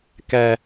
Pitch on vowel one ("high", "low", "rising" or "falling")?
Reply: low